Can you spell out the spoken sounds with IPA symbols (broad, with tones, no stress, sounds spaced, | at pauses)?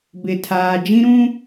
b ɪ˨ tʰ aː˨ d͡ʒ ĩ˦ ɾ ũ˦